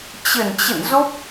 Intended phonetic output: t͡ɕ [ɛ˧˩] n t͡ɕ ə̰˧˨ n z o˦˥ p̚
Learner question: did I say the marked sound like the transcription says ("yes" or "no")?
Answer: no